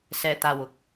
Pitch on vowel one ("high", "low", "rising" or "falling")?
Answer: low